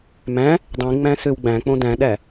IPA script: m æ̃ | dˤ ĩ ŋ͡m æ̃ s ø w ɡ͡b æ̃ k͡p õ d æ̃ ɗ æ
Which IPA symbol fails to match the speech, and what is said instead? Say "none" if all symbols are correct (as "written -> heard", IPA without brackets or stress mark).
none